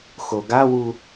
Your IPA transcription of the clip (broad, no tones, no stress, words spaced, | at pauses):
xoɡawu